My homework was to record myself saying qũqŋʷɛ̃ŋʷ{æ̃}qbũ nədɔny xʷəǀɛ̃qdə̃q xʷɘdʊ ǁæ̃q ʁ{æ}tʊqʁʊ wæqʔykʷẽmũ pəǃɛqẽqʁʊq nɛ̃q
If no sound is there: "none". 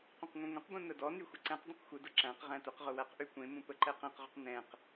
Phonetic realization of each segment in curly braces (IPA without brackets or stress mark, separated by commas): ə̃, æ̃